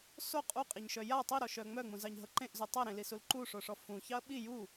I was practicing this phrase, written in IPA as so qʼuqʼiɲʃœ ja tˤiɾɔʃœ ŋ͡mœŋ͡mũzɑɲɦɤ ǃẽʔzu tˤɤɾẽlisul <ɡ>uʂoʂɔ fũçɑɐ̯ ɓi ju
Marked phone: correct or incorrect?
incorrect